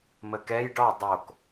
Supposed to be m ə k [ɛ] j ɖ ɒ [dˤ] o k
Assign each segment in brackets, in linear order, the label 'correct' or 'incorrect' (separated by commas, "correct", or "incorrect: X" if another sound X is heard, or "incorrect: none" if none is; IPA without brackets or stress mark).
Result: correct, correct